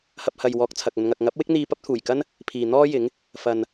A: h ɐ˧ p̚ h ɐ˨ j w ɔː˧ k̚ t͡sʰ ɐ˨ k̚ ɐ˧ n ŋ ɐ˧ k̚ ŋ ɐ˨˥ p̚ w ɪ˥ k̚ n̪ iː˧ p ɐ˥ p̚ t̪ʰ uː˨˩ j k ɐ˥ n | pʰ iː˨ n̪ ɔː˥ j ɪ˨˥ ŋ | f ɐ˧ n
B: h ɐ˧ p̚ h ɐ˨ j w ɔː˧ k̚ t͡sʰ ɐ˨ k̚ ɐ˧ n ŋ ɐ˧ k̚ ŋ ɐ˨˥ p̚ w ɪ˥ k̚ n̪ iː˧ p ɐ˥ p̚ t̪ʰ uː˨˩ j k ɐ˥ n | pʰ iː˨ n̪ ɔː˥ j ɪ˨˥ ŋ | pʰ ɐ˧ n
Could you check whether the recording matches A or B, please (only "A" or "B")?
A